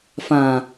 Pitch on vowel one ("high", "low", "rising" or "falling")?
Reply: low